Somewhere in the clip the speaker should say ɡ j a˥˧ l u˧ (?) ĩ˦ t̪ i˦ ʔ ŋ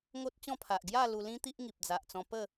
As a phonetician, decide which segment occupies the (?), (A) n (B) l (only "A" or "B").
B